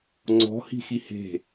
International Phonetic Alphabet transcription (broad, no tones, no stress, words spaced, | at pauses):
ŋ͡ǀɔ̤hi̤ xihe̤